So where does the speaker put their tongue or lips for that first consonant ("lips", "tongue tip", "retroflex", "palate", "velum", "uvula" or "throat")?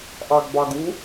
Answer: throat